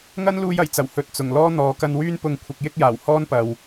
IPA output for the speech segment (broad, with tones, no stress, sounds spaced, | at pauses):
ŋ ɐ˥ n l uː˧ j ɐ˨˩ j t͡s ɐ˨˩ w h ɵ˨ t̚ t͡s ʊ˨˩ ŋ l ɔː˥ n̪ ɔː˨ k ɐ˧ n w yː˥ n p ʊ˧ ŋ kʷʰ ɪ˧ k̚ j ɪ˥ k̚ j aː˨˩ w h ɔː˥ n p ɐ˨ w